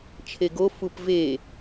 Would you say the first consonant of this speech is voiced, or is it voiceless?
voiceless